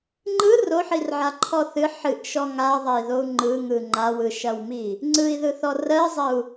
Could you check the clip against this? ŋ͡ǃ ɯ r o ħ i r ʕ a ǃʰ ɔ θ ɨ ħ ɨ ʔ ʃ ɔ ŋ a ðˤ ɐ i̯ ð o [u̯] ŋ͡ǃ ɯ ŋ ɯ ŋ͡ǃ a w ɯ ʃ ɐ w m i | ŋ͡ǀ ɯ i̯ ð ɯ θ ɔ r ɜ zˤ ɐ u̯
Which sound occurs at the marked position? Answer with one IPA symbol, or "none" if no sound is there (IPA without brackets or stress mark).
u̯